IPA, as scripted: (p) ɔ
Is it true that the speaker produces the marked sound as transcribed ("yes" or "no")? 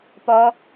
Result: yes